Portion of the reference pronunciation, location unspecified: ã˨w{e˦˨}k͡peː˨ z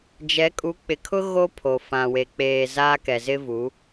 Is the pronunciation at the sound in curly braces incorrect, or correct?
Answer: incorrect: e˨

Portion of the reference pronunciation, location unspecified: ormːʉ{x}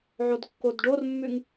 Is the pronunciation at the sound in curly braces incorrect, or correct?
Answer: incorrect: ŋ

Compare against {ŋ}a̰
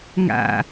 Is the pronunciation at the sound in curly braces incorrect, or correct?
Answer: correct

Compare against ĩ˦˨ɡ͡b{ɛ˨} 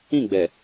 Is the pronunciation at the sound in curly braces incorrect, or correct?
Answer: correct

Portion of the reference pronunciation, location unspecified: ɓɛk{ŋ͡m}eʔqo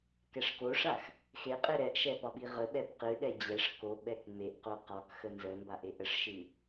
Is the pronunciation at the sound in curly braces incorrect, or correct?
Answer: correct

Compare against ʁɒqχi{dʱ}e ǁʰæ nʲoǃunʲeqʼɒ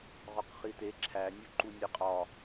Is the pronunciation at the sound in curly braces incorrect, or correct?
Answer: incorrect: t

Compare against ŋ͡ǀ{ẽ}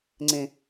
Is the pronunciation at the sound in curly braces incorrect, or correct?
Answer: correct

